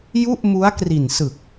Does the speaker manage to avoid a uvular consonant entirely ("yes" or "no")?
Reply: yes